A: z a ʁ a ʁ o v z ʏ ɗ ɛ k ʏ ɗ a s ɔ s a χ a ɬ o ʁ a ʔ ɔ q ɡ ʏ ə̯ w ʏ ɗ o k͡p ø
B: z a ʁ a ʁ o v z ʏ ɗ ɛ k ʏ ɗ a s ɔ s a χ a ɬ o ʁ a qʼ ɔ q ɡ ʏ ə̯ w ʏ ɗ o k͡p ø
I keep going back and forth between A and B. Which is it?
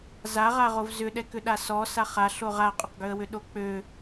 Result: B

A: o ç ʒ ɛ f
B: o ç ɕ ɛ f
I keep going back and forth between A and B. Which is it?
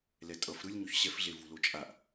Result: B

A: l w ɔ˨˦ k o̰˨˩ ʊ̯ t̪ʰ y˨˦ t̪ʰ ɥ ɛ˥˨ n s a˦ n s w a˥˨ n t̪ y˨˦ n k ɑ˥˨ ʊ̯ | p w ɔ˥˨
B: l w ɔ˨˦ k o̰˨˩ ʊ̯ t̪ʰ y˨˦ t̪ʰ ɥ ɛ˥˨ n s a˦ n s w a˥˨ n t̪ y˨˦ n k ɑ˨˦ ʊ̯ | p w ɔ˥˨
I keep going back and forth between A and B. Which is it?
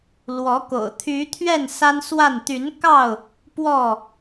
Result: A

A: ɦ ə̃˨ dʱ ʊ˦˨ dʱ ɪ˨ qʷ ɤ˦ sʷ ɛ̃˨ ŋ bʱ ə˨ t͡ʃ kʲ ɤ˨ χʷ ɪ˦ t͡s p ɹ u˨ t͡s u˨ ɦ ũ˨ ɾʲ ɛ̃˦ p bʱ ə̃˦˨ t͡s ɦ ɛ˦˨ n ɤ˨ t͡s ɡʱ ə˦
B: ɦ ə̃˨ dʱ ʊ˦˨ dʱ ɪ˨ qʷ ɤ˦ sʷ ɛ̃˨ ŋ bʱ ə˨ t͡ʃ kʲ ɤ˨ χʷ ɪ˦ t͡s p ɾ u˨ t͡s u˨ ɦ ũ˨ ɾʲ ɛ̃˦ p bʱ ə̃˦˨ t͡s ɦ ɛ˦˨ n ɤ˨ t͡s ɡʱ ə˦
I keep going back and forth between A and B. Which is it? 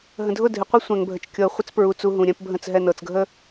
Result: A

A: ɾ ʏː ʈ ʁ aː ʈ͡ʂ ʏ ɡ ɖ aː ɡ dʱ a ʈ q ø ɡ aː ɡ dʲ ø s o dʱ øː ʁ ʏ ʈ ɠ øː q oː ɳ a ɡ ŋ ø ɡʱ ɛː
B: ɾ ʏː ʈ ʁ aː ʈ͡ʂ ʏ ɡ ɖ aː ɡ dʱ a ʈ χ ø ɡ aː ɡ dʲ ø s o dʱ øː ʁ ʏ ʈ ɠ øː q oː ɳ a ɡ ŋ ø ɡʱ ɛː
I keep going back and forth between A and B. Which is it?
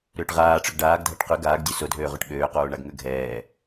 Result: A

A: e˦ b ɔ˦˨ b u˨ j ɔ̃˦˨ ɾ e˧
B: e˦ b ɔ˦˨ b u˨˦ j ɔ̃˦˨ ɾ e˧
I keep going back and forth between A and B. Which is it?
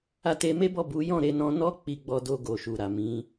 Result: B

